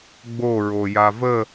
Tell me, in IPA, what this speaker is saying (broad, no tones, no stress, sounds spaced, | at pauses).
ɡ͡b o ɹ o j a v ə